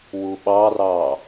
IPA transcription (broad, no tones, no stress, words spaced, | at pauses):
wuɓɑrɑː